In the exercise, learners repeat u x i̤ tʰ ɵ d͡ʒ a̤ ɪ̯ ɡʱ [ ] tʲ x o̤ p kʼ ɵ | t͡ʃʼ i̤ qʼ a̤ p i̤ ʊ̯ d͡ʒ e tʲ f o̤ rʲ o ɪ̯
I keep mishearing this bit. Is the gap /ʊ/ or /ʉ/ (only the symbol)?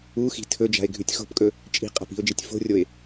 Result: ʉ